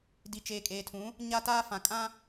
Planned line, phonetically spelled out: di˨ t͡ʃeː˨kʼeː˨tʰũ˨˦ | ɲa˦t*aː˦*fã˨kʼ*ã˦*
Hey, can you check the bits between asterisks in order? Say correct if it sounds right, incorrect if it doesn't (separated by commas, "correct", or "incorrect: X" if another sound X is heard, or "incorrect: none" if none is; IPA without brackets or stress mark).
correct, correct